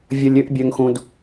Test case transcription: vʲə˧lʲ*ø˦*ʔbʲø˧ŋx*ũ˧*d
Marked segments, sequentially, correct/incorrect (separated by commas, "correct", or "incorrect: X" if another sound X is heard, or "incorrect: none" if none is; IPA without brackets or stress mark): correct, correct